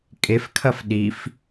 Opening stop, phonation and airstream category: ejective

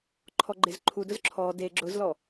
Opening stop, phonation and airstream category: click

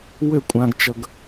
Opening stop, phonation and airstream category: ejective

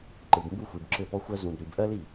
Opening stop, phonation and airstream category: click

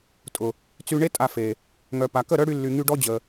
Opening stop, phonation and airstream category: ejective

